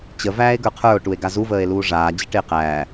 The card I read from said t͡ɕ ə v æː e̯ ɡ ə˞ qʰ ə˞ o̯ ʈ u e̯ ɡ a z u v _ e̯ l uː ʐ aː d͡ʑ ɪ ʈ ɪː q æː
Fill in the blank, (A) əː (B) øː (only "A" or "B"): A